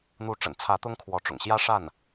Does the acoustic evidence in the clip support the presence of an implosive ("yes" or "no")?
no